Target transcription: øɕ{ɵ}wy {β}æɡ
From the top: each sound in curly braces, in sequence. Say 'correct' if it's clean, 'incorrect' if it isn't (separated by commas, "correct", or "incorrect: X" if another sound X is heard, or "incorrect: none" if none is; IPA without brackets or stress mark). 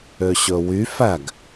correct, incorrect: f